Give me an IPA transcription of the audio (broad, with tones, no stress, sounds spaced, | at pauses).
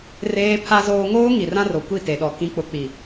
r eː˦ pʰ a˦ z oː˦ ŋ oː˦ ŋ i˨ r ã˦ r o˨ kʷ i˦˨ t e˨ ɗ ɔ˨ k ĩ˦ k͡p ʊ˦ k͡p i˨